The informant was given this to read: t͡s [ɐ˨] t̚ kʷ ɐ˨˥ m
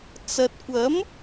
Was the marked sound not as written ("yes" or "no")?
no